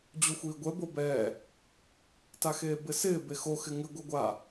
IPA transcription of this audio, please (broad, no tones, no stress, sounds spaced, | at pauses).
d͡ʑ u xʷ iː ɡʷ ɛ b o b ɛː | t a x eː b ɪ s ɪː b e x o x ɪ ŋ ɪ ɡʷ ɛ ɡʷ a